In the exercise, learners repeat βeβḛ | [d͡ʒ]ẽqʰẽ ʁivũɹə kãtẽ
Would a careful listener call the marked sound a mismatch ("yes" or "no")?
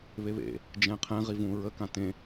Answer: no